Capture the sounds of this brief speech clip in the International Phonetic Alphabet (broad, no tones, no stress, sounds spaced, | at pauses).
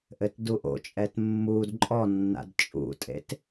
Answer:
ʔ ɘ t d u ʔ o̰ t͡ʃʼ ɛ t mː u d ǃʼ ɔ nː a̰ d t͡ʃʼ ṵ tʼ ḛ t